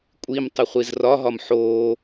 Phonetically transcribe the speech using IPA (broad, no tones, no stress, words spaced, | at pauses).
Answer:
kʷʼim tˤɪχʷizrɒɦɒm ħo